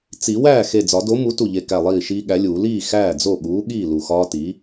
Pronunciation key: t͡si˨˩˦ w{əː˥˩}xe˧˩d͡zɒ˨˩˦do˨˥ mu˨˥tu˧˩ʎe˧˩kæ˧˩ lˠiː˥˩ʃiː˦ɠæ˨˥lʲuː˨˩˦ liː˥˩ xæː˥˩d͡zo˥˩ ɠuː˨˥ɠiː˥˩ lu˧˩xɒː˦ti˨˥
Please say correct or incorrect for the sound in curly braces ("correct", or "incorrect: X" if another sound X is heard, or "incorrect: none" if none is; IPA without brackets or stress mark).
incorrect: æː˥˩